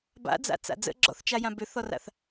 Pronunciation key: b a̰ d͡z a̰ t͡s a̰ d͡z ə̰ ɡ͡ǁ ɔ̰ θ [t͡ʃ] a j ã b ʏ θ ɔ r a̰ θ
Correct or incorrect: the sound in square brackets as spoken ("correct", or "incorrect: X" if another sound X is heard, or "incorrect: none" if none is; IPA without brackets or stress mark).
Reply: correct